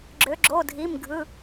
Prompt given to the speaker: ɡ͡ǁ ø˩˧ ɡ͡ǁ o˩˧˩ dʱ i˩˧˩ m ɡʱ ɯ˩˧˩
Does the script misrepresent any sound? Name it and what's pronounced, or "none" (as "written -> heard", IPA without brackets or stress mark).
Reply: none